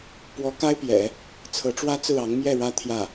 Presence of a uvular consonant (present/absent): absent